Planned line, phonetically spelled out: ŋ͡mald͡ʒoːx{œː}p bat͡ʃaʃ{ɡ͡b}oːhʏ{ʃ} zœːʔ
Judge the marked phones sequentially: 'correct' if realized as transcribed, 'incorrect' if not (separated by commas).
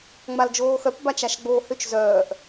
incorrect, correct, incorrect